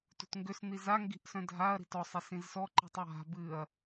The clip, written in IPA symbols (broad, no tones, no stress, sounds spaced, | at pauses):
t ṳ t ŋ ɡ ʏ s n̪ i z a ŋ ɡ i̤ ʔ s œ̃ dʱ a ɐ̯ ɾ i̤ t ɔ sˤ e s ĩ z s ɔ ǃ i̤ tˤ w a̤ b ɨ ɐ̯